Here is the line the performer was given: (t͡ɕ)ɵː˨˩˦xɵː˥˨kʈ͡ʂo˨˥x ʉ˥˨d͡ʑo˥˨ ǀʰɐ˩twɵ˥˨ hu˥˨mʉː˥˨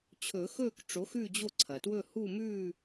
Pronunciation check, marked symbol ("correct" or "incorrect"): incorrect